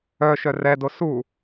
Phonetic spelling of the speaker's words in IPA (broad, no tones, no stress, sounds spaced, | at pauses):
œ ʃ œ r ɛ d o s u